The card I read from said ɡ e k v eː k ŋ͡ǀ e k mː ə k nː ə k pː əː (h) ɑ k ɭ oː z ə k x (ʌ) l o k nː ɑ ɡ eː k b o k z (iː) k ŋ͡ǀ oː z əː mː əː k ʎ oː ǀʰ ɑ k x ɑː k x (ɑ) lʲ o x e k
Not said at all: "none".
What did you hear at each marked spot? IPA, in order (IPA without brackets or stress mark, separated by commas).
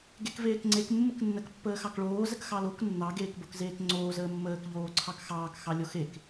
x, ɑ, eː, ɑ